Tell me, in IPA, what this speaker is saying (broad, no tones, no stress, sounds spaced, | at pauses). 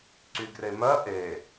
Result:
ǀ y ɡ r e m ɜ ʔ e